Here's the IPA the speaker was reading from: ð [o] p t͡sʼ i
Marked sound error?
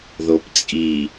no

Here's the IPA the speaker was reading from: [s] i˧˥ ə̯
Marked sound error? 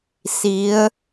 no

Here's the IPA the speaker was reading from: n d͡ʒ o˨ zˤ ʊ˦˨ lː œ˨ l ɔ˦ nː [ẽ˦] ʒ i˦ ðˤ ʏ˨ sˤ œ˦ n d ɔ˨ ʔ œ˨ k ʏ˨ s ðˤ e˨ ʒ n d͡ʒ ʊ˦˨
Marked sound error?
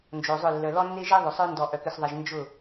yes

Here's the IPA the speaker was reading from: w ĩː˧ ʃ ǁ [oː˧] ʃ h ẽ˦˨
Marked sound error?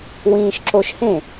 yes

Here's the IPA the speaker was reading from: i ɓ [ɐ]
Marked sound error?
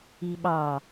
yes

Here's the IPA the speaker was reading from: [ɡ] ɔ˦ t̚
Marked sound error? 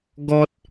no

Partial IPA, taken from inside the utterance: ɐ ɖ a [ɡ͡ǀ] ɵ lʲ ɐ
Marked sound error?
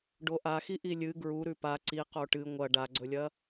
no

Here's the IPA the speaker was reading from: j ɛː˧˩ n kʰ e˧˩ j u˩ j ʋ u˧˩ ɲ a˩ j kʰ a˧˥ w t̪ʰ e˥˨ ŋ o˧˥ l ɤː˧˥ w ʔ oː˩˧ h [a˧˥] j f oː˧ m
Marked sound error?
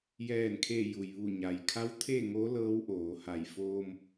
yes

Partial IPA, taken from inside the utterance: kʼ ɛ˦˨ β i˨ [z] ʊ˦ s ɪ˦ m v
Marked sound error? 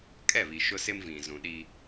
yes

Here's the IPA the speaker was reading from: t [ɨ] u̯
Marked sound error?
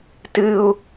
no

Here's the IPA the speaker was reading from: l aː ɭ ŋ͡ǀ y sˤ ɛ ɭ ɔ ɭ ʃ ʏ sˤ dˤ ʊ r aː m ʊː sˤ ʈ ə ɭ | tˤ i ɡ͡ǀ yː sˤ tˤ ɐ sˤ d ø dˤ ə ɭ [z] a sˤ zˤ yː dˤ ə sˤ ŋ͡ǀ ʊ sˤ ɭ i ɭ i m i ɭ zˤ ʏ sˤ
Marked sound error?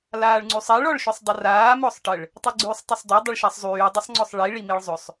yes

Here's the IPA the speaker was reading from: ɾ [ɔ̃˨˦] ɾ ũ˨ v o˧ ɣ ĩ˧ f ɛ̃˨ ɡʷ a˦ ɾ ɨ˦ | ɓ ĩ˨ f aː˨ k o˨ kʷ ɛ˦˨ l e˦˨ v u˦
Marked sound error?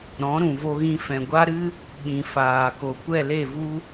no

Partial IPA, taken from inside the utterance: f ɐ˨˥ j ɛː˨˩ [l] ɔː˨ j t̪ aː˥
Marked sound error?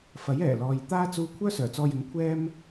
no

